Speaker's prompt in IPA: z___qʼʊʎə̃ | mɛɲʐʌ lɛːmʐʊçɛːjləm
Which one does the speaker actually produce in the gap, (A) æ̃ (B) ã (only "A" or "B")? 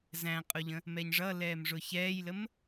A